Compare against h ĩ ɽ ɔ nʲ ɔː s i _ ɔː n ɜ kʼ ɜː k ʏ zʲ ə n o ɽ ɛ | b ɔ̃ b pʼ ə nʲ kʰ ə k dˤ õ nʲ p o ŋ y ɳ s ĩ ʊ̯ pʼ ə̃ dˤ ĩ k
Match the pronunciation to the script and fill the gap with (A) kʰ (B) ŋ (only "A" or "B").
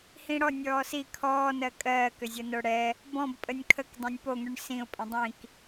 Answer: A